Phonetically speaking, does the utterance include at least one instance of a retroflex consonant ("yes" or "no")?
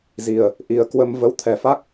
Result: no